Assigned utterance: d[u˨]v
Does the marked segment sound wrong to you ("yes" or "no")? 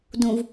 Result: yes